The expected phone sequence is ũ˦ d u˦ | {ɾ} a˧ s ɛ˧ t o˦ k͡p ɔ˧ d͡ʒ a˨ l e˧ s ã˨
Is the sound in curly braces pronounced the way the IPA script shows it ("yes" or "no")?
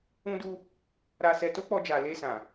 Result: yes